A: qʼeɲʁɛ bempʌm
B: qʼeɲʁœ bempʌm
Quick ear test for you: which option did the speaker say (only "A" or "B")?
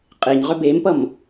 B